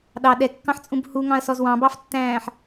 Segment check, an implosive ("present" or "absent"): present